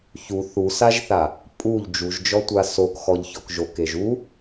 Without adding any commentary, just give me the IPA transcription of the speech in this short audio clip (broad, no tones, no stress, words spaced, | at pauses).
çu θusaʒθa | pʼuʎ d͡ʒuʒd͡ʒɔtʷa sokxɔʎçɔk ʒokeʒ u